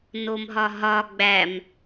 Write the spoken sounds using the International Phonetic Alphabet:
n o m ɦ ɒ ɦ ɒ ɡ͡b æ m

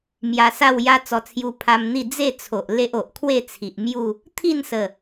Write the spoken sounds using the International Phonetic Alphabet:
m j a˧ s a˥˧ w j a˦ t͡s ɔ˧ t͡sʰ j u˧ pʰ a˧ m n̪ i˥˧ d͡z e˥˧ t͡sʰ o˨ ʔ l e˦ ʔ o˨ ʔ kʰ w e˥˧ t͡sʰ i˨ ʔ m j u˥˧ | t̪ʰ i˥˧ n s ə˨˩

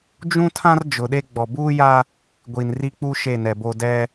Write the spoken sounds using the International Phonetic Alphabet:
d͡ʒ ũ˦ tʰ ã˦ r d͡ʒ ʊ˨ ɗ e˦ ɡ͡b ɔ˨ b uː˦ j a˦ | ɡʷ i˨ n r i˦ k͡p u˦ ʃ e˦˨ n ɛ˨ b o˦ d ɛ˦

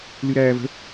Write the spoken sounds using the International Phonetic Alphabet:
l ɨ ɾ æː v ə̤

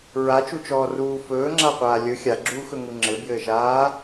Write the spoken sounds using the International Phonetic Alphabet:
ɹ a t͡ʃ u t͡ʃ ɔː r uː f ɵː ŋ͡ǁ a qʷ aː lʲ ɵ xʲ a ɡ͡ǁ uː x ɵ ŋ u ŋ͡ǁ ɘ b j ɘː ʃ aː

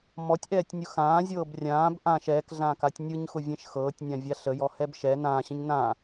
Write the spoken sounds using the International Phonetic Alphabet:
m ɔ tʲ ʔ ɛː tʲ nʲ ʊ x ãː zʲ ɤː b rʲ ãː b ʔ ã ʃ ɛː k ɮ ãː k a tʲ nʲ ɯ ɲ x ʊ vʲ ɛ̃ ʃ x ɤː tʲ nʲ ã vʲ a ɬ ə j ɔ h ɛ b ʃ ɛ n ãː ɕ ə̃ ɲ n ã

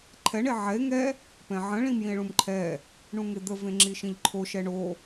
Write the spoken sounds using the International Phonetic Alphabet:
ǃʰ ɛ ɳ e ʕ ɛ e̯ ŋ ɛ | p ɛ̃ ʕ ə̃ ɭ ĩ m j ĩ e̯ ɭ ũ m ǃʰ ɛ | ɳ ũ ŋ e d̪ ə v ẽ ŋ͡ǁ i ʃ ĩ ʎ ǃʰ o ʃ ɛ ɳ o

